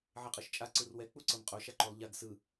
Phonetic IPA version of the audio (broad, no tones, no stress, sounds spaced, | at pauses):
ʕ e qʼ ɤ ʃ t͡ʃʼ a ǀ ɯ r w ɛ k͡p u ǀ ɤ m qʼ o ʃ a ǃ o lˠ ʎ a ɡ s ɯ